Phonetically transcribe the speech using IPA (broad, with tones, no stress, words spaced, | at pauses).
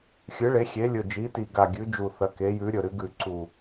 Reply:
xʲɨ˩˥ ɭe˩˥ xʲe˩˥lʲɵ˨˩d͡ʒi˩˥ti˨˩ ɡa˨˩ɡʲʉ˩˥d͡ʒu˨˩ θɐ˩˥ke˩˥jʉ˩˥ɾʲɵ˨˩ ɾɨ˩˥ɡʉ˨˩ ǀu˨˩